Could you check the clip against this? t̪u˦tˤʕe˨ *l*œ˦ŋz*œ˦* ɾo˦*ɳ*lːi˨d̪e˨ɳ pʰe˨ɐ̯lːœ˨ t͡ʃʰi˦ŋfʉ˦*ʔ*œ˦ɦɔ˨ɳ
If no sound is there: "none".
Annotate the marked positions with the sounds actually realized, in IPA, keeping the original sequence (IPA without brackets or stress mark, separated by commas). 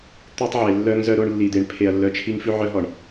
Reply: lː, œ˦, ɳ, ʕ